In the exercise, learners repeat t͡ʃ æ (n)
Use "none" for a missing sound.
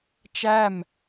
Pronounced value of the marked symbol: m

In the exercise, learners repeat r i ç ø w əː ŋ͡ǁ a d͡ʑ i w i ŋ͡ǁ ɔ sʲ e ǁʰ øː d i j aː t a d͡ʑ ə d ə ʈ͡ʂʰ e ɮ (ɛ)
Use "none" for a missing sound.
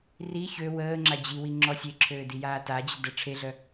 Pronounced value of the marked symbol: œ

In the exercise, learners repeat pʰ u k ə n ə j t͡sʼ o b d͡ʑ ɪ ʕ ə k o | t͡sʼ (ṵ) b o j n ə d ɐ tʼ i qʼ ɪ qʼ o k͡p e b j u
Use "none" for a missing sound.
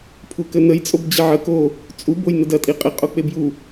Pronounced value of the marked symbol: u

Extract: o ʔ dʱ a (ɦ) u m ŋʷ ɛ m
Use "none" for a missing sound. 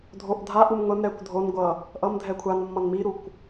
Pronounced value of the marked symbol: ʔ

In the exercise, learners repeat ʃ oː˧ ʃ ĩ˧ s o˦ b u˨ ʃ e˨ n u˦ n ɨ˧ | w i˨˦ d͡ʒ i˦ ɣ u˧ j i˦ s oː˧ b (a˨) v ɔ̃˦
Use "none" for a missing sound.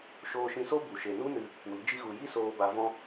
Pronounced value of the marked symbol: a˧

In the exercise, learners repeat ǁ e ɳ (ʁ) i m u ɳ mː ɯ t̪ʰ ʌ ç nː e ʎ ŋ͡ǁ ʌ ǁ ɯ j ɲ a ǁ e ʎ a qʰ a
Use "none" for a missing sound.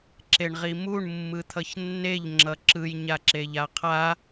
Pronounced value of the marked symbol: ʁ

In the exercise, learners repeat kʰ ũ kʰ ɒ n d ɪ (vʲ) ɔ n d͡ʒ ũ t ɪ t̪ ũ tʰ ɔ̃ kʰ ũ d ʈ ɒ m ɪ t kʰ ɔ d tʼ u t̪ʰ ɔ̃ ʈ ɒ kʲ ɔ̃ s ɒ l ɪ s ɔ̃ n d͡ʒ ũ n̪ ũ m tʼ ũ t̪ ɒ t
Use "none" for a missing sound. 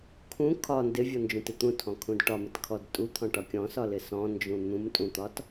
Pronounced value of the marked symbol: vʲ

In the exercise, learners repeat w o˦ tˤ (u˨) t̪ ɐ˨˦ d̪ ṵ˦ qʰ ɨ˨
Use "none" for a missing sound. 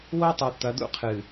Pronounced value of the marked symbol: u˨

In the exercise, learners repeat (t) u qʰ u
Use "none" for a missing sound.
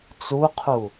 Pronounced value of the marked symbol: t͡s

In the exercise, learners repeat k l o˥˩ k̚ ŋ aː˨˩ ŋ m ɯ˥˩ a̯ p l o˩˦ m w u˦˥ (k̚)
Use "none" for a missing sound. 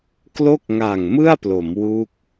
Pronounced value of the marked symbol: k̚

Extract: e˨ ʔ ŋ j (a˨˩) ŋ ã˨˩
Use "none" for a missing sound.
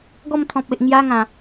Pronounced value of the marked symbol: a˧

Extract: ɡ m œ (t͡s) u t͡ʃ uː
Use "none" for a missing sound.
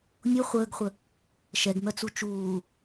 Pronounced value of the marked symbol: t͡s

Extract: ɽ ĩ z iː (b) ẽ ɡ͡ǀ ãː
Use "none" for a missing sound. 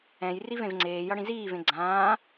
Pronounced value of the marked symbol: v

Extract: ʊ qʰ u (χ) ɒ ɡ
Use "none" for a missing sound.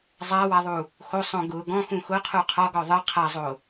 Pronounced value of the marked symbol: qʰ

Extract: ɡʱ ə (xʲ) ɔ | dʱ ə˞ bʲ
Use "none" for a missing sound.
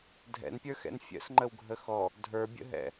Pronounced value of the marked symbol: x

